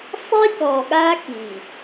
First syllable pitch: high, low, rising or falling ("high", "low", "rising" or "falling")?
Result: high